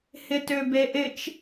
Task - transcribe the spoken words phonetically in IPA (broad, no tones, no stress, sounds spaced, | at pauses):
h ɪ t ø b e ʔ ɪ t͡ʃ